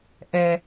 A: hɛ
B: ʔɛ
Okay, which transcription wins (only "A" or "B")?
B